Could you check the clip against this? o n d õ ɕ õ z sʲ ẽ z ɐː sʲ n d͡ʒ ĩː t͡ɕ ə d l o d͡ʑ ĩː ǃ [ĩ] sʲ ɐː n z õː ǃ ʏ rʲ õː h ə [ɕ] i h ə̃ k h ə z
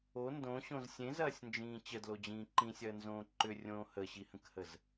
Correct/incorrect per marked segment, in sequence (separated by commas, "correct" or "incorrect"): correct, correct